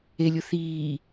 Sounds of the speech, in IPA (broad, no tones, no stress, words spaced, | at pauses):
elʲʊ θiː